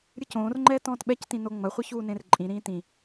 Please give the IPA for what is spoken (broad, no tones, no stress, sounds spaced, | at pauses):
ɾʲ ɨ c õː r ŋ͡ǃ ɛː t ɔ̃ː t ɓ ɛ c t ĩ n o ŋ͡m ɐ χʷ e ç uː n ẽ r ǃʼ ĩ ɾ ĩː t ĩ